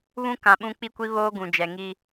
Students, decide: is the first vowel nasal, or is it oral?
nasal